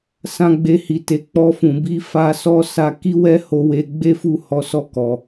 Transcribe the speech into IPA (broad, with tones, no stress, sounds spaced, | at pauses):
s ã˧ ɡ͡b e˧ h i˨ t e˨ k͡p ɔ˧ f ũ˨ b i˧ f a˧ s ɔ˦ s a˧ k i˦ w ɛ˦ h o˧ w e˧ ɡ͡b e˦ f u˦˨ h ɔ˨˦ s ɔ˦˨ k ɔ˨